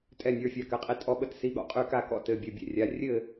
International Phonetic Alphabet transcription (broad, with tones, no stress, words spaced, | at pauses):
tʼɛ˥˧nʲə˞˧˥˧ fʲa˥˧kɘ˧˥˧qʼi˥˧ tʼɔ˥˧ɓə˥˧tsi˧˥˧ ɠɔ̰˥˧qʼy˥˧ka˥˧kɔ̰˥˧ tɘ˧˥˧bʲɘ˧˥˧bʲɛ̰˥˧rʲa˧˥˧ rʲɘ˥˧